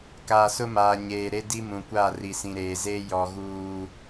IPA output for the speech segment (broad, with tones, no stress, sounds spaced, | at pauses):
k aː˨ s ʊ˦ m aː˨ ɲ eː˨ ɾ e˦ d i˦ m ũ˨ kʷ a˦˨ r i˨ s ĩ˨ ɾ eː˨ z eː˦ j ɔ˨ ɣ uː˨